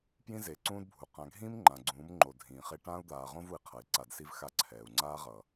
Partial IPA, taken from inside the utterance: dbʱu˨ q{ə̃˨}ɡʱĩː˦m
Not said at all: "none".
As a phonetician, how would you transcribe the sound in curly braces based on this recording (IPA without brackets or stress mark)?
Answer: ã˨